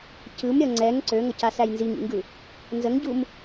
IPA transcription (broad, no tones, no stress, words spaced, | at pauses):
cɯmɾʲʌ ŋ͡ǀɛŋ ǀøŋʌcasæj nziŋḭŋɡɯ | nzəŋɟum